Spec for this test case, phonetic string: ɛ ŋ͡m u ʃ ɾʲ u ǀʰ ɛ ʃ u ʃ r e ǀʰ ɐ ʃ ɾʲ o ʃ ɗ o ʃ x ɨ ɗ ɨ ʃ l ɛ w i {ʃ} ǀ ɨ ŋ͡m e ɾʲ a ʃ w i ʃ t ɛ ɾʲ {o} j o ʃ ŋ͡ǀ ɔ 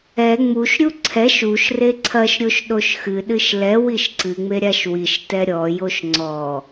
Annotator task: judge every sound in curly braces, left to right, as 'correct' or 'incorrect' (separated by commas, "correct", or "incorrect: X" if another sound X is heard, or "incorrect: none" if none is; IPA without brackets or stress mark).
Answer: correct, incorrect: ɔ